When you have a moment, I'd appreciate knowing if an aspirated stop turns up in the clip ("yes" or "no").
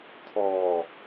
yes